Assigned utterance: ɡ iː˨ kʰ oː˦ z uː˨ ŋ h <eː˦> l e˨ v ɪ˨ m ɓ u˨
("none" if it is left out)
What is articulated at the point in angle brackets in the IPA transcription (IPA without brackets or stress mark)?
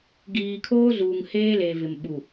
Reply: eː˦